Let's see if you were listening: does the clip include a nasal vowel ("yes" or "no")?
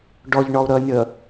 no